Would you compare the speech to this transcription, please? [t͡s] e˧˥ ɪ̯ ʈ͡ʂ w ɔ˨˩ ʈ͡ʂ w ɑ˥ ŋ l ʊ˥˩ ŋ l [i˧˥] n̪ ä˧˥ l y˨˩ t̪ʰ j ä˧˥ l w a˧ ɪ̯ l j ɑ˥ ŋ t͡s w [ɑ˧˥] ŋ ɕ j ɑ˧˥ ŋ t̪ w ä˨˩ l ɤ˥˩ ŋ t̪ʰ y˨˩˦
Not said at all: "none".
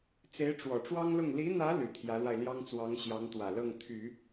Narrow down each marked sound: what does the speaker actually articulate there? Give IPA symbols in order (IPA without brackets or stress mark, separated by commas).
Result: t͡s, i˧˥, ɑ˧˥